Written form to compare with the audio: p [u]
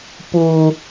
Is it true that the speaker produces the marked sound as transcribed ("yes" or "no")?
yes